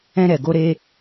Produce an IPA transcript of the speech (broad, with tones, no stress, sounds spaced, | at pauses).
ɛ̃˧ ɾ ɛ˨ ɡ o˧ ɾ e˧